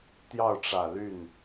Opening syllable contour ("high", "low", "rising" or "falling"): falling